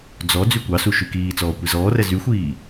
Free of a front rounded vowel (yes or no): no